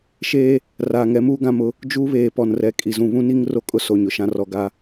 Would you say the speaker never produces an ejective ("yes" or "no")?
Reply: no